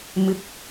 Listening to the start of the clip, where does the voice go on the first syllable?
rising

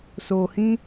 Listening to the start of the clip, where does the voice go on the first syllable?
low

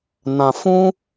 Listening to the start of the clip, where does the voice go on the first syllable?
low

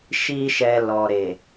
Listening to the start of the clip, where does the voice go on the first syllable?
high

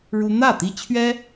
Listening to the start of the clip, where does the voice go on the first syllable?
high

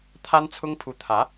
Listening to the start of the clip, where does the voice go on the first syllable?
high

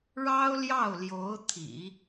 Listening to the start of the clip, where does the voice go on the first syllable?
high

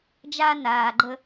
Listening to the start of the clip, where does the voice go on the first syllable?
high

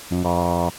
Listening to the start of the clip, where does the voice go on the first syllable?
low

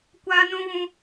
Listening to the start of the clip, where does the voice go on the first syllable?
high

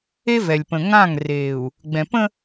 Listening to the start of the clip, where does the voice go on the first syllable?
high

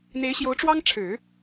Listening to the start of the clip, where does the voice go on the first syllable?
rising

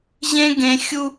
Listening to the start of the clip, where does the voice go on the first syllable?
high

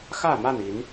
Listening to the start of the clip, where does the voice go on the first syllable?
falling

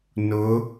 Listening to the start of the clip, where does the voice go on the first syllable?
rising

